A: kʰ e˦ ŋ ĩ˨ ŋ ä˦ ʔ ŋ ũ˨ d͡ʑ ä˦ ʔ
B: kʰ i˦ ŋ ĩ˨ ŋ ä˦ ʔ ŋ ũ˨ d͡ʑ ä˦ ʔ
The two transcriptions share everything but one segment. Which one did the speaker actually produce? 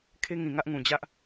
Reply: A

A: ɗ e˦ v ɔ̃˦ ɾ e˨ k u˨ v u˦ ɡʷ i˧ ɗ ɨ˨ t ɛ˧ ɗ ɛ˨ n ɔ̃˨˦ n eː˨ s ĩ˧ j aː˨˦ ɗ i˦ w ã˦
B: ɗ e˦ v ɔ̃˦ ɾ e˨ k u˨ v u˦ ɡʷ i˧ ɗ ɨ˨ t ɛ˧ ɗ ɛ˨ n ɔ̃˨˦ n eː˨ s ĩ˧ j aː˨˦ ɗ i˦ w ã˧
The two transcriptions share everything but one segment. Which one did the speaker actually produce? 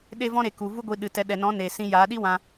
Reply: B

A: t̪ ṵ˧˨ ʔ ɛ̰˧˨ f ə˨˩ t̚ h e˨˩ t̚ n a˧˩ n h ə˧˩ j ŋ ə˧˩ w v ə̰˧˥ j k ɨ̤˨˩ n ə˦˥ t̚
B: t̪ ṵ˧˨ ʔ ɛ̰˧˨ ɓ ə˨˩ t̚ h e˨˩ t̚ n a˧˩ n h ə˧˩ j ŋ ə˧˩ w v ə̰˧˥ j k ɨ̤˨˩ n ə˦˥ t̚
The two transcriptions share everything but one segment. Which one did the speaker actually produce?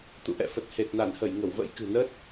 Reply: A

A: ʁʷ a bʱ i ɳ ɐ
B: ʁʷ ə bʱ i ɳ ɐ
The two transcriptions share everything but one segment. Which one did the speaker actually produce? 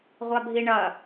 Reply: A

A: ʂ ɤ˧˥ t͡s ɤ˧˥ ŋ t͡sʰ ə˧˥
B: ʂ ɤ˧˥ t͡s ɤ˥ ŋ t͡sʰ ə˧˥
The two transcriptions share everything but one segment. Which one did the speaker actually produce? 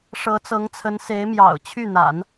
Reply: A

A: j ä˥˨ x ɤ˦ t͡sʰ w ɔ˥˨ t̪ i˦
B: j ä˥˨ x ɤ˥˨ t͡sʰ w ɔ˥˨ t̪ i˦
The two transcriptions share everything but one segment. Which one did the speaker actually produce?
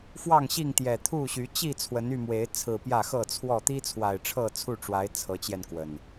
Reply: B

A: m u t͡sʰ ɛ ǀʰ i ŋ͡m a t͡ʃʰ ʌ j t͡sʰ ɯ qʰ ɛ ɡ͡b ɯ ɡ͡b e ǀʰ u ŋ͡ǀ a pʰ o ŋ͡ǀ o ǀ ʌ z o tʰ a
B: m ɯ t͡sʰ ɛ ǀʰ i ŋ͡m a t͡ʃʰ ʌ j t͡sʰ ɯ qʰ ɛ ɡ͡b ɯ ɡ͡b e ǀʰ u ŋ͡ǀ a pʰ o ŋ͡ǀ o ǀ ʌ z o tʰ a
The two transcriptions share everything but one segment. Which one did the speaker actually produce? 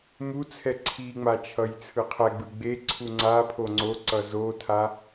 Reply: A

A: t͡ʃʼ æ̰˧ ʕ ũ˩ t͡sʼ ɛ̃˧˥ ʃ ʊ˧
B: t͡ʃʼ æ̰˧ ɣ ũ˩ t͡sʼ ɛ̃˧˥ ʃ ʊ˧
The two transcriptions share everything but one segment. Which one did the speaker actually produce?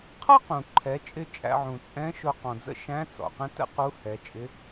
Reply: A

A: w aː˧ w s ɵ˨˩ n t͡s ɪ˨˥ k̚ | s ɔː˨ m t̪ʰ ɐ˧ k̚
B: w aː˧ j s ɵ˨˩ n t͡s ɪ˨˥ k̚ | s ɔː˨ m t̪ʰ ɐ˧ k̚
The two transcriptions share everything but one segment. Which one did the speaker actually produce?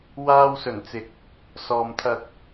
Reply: A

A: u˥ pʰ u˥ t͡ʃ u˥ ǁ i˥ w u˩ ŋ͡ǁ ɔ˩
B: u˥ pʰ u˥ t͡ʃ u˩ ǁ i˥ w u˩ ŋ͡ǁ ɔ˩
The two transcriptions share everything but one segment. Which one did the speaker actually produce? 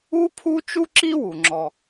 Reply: A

